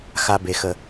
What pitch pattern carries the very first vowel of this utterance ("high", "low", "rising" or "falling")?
high